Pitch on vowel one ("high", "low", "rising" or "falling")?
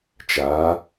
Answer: rising